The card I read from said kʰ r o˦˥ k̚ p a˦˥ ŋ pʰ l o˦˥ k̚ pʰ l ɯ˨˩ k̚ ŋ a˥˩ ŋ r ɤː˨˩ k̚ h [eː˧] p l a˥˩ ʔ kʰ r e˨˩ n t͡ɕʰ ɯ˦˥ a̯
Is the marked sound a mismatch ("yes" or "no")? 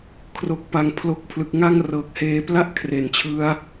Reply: no